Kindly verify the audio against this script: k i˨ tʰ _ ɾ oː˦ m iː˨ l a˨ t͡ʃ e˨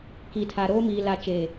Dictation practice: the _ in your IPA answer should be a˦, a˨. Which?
a˨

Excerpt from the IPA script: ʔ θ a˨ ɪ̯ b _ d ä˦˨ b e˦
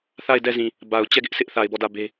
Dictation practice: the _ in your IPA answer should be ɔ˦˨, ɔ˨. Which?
ɔ˦˨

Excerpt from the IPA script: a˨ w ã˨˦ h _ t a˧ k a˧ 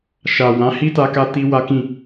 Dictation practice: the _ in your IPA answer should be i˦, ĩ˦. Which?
i˦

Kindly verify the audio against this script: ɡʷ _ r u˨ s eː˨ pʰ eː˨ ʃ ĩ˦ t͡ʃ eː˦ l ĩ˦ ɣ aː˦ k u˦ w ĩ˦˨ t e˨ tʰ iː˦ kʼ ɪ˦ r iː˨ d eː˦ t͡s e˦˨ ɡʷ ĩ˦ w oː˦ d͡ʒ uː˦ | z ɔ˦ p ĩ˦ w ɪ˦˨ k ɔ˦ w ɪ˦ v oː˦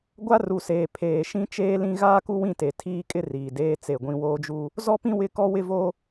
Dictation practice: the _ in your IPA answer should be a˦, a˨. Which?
a˦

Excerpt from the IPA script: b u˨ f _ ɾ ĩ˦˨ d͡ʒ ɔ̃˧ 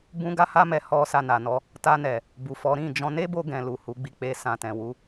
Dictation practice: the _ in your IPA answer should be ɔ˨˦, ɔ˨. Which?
ɔ˨˦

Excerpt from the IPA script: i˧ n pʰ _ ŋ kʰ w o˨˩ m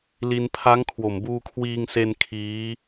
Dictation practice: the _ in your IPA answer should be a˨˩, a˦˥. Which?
a˦˥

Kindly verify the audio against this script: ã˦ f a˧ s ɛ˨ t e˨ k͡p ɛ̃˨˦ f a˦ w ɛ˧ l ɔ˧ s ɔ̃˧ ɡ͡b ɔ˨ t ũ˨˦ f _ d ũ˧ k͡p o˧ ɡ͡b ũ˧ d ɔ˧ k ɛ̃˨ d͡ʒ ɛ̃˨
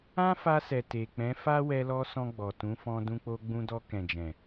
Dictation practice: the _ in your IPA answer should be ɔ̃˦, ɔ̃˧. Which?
ɔ̃˧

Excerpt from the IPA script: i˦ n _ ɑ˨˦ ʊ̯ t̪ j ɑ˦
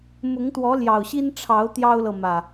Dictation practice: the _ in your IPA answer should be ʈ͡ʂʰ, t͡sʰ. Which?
ʈ͡ʂʰ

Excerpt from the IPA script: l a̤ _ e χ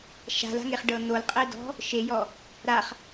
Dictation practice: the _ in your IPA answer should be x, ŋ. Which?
ŋ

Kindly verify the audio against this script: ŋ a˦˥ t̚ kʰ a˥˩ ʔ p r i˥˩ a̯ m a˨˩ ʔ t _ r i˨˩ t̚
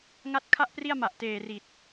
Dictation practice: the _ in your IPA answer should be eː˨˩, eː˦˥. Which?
eː˨˩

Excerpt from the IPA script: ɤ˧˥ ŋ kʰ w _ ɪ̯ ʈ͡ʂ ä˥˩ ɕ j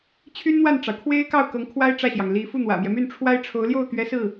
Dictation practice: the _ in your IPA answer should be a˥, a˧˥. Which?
a˥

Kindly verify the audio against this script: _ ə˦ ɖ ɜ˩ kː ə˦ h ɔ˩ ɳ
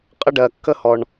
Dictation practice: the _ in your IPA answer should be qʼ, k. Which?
qʼ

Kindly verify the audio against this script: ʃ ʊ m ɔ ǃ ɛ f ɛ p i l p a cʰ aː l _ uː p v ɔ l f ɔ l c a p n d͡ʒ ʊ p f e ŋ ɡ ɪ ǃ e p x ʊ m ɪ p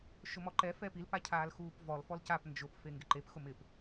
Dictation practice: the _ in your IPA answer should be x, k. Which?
x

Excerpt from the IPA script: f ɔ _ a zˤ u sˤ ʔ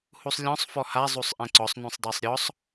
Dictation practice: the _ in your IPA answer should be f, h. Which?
h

